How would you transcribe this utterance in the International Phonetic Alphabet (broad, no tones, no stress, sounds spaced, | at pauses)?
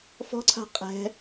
f ɔ̤ ǀʰ a̤ qʼ ɛ̤